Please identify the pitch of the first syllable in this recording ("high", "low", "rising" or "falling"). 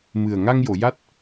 low